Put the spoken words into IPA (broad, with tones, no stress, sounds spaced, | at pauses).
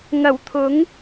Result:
ŋ ɐ˨˩ w t̪ʰ ʊ˨˥ ŋ